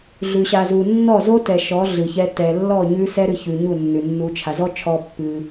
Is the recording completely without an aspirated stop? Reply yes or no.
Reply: no